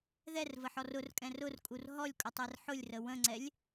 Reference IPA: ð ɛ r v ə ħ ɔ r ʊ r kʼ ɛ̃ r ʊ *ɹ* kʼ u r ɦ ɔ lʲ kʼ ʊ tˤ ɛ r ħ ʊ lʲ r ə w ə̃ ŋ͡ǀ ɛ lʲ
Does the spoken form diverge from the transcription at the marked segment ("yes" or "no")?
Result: yes